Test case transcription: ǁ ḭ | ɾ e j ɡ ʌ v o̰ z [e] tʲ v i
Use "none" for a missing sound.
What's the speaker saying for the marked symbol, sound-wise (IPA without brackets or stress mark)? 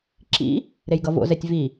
ɛ